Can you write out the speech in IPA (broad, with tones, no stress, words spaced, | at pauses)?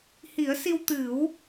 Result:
hi˨˩˦ə̯si˧wt̪ɨ˨˩˦w